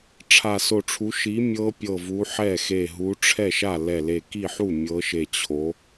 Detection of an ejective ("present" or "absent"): absent